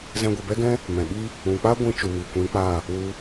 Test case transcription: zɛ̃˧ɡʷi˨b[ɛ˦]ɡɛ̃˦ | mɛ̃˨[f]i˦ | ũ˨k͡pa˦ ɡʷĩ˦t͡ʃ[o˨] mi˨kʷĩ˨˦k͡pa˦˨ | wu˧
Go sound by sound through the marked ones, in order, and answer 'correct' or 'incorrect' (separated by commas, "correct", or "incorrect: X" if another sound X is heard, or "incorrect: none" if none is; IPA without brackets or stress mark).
correct, incorrect: ɓ, incorrect: u˨